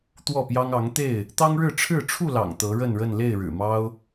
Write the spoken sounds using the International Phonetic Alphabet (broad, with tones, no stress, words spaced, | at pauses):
t̪wɔ˥˨pjɑ˦ŋ ɑ˨˦ŋt̪e˥˨ɪ̯ | t̪ɑ˦ŋɻɻ̩˥˨ ʈ͡ʂʰɻ̩˥˨ ʈ͡ʂʰu˥˨ lɑ̰˨˩ŋ t̪ɤ˨˦ɻə˥˨nɻə˥˨n le˥˨ɪ̯ɻɻ̩˨˩mɑ˦ʊ̯